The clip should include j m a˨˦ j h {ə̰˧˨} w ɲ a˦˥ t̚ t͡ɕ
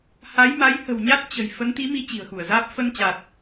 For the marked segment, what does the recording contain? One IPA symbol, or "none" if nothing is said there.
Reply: ə̤˨˩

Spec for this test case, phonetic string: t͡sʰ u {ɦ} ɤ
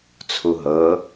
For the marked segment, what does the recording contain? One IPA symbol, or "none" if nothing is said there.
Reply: ɦ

